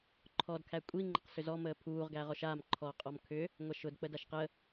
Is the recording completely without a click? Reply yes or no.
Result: no